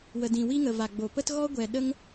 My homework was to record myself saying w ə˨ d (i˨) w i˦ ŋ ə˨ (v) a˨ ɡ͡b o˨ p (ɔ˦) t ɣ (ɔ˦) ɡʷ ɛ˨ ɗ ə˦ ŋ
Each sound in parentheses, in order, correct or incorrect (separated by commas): incorrect, correct, incorrect, correct